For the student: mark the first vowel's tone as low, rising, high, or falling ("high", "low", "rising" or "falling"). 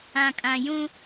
low